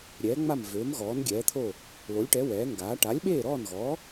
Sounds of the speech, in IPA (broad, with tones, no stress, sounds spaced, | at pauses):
ɾʲ ɛː˩˥ ŋ͡m a˥˩ m v øː˩˥ m ɣ ɔː˩˥ n ɡʲ ɛː˩˥ t̪ʰ oː˥˩ | l o˩˥ lʲ ʈ ɛ˩˥ w ɛː˩˥ ŋ ɡ aː˩˥ ʈ a˩˥ lʲ ɓ eː˥˩ ɾ ɔː˥˩ n ɣ ɔː˩˥